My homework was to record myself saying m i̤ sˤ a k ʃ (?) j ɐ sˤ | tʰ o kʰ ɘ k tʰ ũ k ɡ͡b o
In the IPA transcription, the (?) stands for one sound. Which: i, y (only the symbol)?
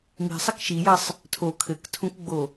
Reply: i